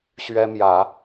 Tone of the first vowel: high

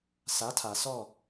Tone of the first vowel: rising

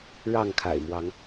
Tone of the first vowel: falling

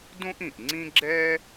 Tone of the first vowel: high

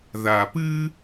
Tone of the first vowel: low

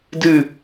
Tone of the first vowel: falling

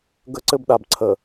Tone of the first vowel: high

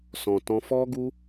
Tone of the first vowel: low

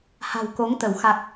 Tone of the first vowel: low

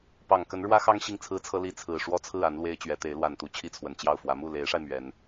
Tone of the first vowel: low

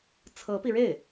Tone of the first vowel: rising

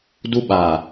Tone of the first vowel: high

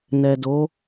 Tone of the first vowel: low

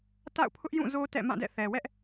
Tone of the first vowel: falling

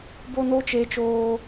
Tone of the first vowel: high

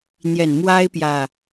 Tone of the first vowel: low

